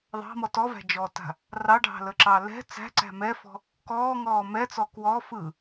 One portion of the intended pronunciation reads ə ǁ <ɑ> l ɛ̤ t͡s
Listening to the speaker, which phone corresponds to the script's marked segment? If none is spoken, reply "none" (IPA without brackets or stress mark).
ɑ